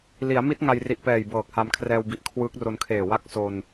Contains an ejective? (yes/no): no